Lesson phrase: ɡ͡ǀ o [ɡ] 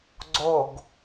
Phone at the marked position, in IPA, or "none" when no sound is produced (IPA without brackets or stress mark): ɡ